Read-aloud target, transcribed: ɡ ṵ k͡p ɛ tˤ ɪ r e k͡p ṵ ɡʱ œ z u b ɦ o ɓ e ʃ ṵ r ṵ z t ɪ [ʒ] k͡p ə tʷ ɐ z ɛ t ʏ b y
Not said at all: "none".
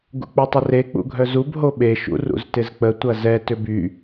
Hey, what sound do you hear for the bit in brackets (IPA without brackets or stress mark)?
z